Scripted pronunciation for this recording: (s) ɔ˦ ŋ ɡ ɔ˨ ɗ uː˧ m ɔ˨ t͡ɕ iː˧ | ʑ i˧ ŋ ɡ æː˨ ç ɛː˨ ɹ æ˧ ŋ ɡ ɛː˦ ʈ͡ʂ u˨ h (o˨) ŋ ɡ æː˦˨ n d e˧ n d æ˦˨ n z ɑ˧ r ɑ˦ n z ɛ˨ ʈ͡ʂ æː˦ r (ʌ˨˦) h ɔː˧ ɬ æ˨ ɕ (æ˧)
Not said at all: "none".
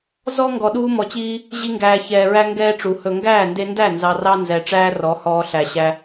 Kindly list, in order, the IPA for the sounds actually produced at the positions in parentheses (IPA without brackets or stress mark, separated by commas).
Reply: z, ɵ˨, ɔ˨˦, æ˧